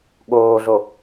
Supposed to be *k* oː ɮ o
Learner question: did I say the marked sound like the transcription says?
no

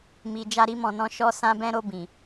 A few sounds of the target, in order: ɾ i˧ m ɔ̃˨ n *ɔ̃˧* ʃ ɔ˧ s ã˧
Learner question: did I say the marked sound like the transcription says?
yes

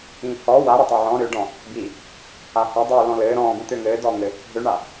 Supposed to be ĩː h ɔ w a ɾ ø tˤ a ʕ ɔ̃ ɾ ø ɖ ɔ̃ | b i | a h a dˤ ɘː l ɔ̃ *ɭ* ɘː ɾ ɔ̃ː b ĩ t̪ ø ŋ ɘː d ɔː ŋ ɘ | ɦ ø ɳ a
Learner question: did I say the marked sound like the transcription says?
no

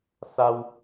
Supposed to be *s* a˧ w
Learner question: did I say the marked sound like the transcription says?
yes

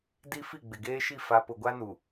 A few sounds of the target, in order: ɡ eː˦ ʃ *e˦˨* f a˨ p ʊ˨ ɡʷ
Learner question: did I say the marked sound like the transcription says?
no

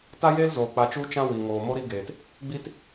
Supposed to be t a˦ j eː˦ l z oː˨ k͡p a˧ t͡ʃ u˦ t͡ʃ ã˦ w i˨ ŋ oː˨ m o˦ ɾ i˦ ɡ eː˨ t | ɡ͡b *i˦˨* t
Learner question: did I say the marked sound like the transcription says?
no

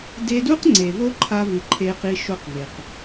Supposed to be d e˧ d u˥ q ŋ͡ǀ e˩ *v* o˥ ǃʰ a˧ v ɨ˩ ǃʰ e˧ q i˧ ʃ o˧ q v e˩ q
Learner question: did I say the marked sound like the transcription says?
yes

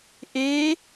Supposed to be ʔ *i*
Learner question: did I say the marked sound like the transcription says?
no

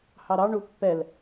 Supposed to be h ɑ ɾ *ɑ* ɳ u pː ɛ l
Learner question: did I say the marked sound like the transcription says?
yes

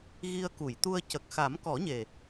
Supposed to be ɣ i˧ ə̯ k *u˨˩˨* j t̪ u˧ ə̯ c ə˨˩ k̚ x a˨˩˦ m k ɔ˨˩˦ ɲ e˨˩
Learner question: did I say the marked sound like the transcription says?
yes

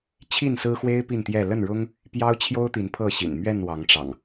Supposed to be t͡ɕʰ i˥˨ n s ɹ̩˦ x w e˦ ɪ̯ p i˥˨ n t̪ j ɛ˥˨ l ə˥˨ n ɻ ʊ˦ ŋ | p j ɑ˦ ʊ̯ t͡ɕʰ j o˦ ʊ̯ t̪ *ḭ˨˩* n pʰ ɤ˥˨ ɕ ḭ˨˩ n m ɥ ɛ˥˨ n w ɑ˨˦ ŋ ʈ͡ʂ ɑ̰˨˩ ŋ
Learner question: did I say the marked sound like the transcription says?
no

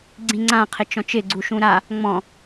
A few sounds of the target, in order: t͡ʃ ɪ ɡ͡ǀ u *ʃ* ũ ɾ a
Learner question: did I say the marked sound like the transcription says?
yes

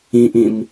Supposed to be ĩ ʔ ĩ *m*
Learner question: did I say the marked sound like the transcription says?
yes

